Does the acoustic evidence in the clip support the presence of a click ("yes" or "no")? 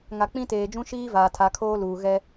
no